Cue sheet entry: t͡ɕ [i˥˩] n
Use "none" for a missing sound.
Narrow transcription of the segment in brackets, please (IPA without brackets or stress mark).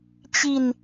i˧